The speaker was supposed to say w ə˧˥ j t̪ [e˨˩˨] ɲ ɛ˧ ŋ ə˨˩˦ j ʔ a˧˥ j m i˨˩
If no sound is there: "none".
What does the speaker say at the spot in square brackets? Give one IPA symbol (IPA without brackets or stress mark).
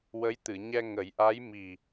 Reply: ɨ˨˩˨